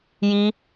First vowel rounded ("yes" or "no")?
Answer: no